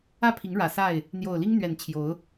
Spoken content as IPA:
ä˥˨ pʰ i˨˦ ŋ ɻ ä˨˩ s a˥˨ ɪ̯ | n̪ j o˨˩ ʊ̯ l i˦ ŋ n̪ ɥ ɛ˨˩ n t͡ɕʰ j o˨˦ ʊ̯

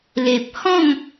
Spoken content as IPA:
l e˨ p̚ h ɔ̃˥˧ ŋ

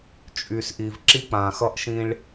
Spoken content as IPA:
t͡ʃʼ y˨ s ʔ i˨ v ǁ i˦ k͡p ã˨ x ʌ˦ ʔ ʃ ĩ˦ ɭ

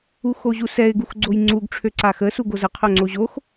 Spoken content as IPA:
u x o ʑ u s ɛ ɪ̯ ɡ u x ɡ͡ǀ o j ŋ͡ǀ u ɡ ʈ͡ʂʰ ø ǀ a x ə s u ɡ o z ə qʰ o ŋ͡ǀ o ʑ o x

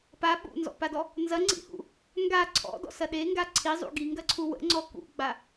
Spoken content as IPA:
p a ɓ ṵ n z ɔ̰ p a d ɔ | n z ɐ ŋ͡ǀ ḭ h ṵ | ŋ ɡ a ǀʰ ɔ̰ d ɔ̰ s ɐ ɗ e ŋ ɡ a ǀʰ i zˤ ṵ ɡ i ŋ ɡ ɐ ǀʰ u w ə̰ ŋ͡ǀ ɔ k ṵ ɡ͡b a

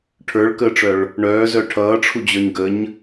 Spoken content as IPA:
ʈʰ ə˞ ɭ k əː ʈ͡ʂ œ ɭ | ɳ œː z œ ʈʰ ʌː ʈ͡ʂʰ u d͡ʑ ə˞ ɲ ɡ ə ɲ

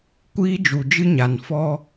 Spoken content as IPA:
kʷ iː˦ d͡ʒ u˨ d͡ʒ ɨ˦ ɲ a˨ n f ɔ˦

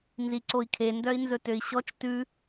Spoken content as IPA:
n z i ǀ o i̯ kʰ e n d œ i̯ n z ɵ t ø i̯ ɕ ɔ t͡ʃ t ʉ

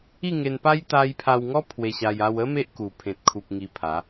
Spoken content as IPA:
i˥˧ ŋ e˧ n p a˦ j t̪ a˧ j pʰ a˧ w ŋ ɔ˦ pʰ w e˧ ɕ a˧ j a˧ w ə˦ m e˦ ʔ k u˨˩ pʰ ẽ˨ t̚ kʰ u˨ p̚ ŋ i˧ pʰ a˨˦

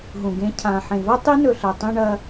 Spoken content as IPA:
ɦ ũ˨ ɡ ẽ˧ cʰ ã˨ ħ ẽ˨ v ɐ˦ tˤ i˦ n ɵ˧ ɬ ɐ˨ tˤ ĩ˦ ɳ ɐ˧

